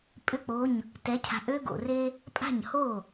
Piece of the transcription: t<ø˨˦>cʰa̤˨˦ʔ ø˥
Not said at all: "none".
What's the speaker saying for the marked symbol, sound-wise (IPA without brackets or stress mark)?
ɛ˨˦